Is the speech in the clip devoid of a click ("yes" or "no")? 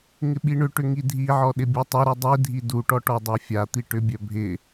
yes